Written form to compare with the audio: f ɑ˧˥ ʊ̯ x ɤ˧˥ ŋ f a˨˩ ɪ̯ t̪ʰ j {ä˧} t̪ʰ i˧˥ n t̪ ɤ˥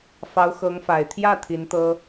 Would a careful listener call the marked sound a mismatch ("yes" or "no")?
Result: yes